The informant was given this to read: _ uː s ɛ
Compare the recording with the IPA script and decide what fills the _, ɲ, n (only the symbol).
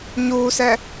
ɲ